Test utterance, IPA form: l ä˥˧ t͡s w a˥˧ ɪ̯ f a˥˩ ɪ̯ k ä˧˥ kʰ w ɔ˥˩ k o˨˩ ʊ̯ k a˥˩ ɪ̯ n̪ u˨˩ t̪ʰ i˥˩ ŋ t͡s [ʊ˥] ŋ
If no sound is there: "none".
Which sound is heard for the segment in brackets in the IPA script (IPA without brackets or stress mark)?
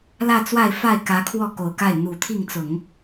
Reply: ʊ˨˩˦